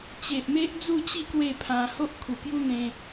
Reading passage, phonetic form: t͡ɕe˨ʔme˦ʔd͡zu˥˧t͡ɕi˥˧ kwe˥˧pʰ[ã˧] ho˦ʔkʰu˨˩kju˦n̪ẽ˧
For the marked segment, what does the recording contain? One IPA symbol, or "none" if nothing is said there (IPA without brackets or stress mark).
ã˧